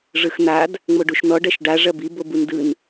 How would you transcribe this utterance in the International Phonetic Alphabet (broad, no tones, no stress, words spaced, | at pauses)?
ʐɯxn̪ad | ŋ͡moɖuʃn̪ɔ ɖɐʃɖa ʐɐbi bobundɯn